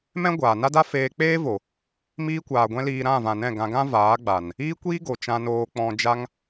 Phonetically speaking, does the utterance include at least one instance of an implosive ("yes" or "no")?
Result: no